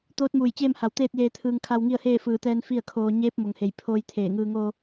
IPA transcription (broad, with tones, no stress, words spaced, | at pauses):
t̪oː˧˥t̚muː˧˩jt͡ɕeː˥˨m ha˧˩wt̪eː˥˨t̚jeː˧ t̪ʰɯː˧ŋ kʰa˧wŋi˥˨ə̯heː˥˨ fɯː˧˩t̪ɛː˧n fi˥˨ə̯kʰoː˧ ɲeː˧˥p̚ mo˩ŋhe˧˩jpʰoː˧j t̪ʰeː˧˩ŋɯː˧ ŋoː˧